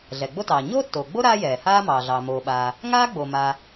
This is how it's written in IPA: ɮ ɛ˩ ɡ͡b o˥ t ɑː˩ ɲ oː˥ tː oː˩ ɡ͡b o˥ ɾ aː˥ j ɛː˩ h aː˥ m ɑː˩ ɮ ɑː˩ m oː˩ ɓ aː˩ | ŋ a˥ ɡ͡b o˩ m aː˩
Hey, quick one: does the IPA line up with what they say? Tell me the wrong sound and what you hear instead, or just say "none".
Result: a˥ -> aː˥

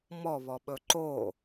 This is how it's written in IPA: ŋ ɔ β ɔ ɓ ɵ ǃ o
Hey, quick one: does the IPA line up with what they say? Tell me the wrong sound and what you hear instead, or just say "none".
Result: ŋ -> m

